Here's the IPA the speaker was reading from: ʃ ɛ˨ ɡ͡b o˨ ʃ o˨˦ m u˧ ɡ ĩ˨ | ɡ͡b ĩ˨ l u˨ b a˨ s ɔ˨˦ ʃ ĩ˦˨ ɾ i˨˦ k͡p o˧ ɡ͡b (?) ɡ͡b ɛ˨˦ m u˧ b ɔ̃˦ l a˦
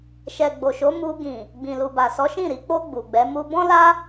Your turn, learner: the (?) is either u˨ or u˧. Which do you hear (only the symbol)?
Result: u˨